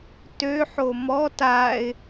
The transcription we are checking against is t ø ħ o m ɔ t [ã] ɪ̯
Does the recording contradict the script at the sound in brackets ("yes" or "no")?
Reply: yes